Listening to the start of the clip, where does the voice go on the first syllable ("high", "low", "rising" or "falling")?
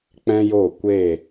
high